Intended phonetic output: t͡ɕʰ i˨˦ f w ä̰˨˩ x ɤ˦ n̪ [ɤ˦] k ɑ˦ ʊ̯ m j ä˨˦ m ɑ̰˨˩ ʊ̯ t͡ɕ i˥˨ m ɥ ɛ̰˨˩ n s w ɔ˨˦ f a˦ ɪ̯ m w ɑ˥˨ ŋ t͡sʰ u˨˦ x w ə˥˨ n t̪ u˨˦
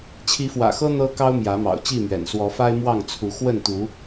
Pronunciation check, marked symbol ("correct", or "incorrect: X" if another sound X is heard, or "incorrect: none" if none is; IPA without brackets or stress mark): correct